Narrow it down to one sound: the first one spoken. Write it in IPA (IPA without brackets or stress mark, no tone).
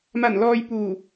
m